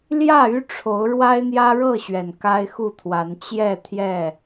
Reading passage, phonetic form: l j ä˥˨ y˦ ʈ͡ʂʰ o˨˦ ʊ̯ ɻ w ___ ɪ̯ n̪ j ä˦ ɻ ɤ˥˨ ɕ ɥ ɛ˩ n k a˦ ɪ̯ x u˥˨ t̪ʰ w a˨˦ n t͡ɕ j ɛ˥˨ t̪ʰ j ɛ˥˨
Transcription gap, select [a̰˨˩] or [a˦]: a˦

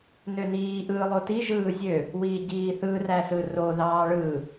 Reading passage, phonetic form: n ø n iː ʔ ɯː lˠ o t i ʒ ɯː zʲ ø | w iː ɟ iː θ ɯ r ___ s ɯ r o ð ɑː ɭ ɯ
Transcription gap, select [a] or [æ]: æ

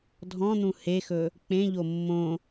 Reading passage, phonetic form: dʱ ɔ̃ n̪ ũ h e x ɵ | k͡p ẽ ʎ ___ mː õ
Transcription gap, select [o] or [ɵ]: o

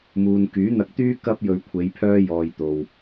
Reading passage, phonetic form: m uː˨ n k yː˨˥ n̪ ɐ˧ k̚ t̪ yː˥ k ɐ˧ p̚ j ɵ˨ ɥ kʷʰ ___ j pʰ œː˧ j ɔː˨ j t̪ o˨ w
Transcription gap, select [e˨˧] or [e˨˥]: e˨˧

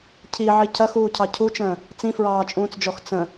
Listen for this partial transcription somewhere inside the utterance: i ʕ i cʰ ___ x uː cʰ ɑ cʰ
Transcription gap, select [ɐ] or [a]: ɐ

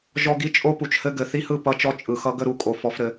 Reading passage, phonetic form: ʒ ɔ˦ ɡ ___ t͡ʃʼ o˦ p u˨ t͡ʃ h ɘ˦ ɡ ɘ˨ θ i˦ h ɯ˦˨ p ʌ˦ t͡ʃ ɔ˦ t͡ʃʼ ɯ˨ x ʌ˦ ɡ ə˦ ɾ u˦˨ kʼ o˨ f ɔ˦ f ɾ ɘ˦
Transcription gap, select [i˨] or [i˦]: i˦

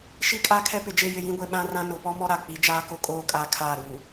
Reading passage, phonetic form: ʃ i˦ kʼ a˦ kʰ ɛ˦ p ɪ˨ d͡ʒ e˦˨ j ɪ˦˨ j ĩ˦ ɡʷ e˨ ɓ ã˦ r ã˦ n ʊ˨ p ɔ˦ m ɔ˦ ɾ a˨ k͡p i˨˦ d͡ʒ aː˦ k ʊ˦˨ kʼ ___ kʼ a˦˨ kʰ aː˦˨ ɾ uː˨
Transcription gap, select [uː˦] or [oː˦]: oː˦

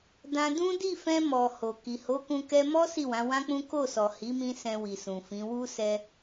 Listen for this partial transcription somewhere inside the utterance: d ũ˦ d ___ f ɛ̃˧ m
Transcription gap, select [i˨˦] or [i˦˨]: i˦˨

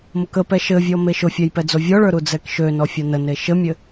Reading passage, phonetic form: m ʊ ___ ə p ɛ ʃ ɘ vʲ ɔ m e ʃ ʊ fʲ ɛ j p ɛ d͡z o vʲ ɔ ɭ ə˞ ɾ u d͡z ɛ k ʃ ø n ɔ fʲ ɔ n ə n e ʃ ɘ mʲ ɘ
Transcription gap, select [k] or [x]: k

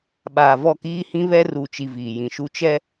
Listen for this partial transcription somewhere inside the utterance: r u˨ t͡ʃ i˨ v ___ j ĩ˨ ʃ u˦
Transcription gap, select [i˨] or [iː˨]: iː˨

